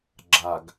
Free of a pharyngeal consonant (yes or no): yes